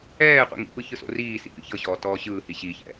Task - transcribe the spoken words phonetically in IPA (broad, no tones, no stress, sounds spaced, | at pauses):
ɛː qʷ ḭ ŋ ḭ p ɯ ç ɯ s o̰ r iː s ḭ p ḭ ç ɤ ɕ ɔː t ɔː ɕ ɯː h i ɕ i ç ɛ̰